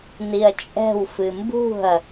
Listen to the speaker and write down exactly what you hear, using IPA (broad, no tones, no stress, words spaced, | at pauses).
niɐ̯t͡ʃʼɛ̤w fɨmbṳɐ̯